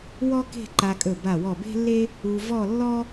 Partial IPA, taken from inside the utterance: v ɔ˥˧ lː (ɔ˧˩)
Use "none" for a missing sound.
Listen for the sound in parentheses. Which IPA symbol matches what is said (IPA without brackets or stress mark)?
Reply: ɔ˥